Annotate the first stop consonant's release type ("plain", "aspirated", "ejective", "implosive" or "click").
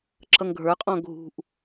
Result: click